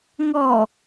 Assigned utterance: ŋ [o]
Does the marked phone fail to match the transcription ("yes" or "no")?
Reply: yes